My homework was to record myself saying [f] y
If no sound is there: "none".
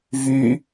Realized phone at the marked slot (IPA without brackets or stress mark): v